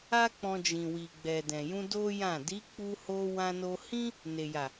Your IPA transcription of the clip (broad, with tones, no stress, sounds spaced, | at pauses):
a˦ k͡p ɔ̃˧ d͡ʒ ĩ˨ w i˨ ɡ͡b ɛ˨ d ɛ̃˨ j ũ˧ d o˦ j ã˦˨ d i˨˦ k͡p u˧ h o˧ w ã˧ n o˧ h ĩ˦ | n e˨ j a˨